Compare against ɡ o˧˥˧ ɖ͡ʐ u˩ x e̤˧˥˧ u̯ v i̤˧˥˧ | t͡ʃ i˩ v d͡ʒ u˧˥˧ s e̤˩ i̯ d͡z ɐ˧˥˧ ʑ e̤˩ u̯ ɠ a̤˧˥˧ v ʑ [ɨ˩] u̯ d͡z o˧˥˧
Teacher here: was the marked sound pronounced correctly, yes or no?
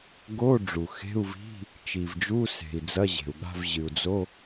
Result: yes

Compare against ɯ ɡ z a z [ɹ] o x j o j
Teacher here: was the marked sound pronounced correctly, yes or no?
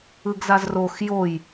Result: no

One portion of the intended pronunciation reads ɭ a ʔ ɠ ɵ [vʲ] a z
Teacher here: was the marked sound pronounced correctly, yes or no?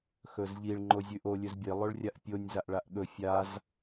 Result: no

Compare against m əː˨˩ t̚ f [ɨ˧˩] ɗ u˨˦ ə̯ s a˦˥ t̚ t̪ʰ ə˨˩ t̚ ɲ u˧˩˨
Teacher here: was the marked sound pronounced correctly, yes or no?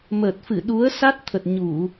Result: yes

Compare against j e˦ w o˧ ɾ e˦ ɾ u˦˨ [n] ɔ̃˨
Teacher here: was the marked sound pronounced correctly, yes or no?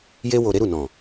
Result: yes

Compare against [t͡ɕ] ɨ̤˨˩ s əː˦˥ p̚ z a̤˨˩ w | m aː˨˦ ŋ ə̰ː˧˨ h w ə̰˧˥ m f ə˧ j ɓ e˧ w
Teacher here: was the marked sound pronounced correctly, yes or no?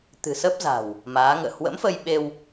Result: no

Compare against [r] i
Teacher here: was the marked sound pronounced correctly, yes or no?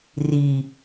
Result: yes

